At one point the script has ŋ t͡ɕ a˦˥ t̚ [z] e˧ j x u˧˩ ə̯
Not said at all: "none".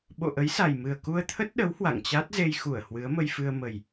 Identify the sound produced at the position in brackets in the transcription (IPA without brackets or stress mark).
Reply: z